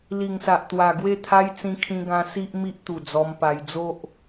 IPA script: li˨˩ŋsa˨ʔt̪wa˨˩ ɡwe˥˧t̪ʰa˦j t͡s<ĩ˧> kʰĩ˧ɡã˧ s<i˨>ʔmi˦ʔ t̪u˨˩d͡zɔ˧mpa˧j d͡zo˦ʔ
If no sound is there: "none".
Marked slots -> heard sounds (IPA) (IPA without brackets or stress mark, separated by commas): ĩ˧, i˦